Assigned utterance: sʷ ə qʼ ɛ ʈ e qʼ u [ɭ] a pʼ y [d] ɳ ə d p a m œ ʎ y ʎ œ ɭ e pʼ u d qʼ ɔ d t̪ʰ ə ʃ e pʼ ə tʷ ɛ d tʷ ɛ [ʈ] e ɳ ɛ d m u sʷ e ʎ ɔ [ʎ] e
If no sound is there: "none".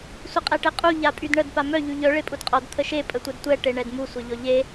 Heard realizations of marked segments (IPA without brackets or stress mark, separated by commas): ʎ, d, ʈ, ʎ